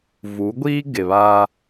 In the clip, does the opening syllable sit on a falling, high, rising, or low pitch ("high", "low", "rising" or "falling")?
rising